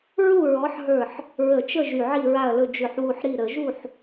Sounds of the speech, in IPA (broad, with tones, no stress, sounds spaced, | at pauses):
ɹ u˥˨ ɹ ɔ˨˥ ħ ɦ ə˞˧˩ ħ | ɹ ə˧˩˧ t͡ʃ ə˥˨ ʒ y˧˩ ʕ i˥˨ ɹ a˥˨ ɐ̯ l ɵ˥˨ d͡ʒ ʏ˧˩˧ ħ w u˧˩ ħ ɾ i˧˩ ɾ ə˧˩˧ ʒ u˥˨ ħ